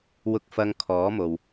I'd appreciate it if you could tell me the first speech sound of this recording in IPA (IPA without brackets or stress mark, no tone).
w